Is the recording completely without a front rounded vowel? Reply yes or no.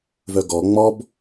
no